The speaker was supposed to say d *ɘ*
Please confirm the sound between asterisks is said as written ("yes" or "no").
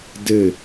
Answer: yes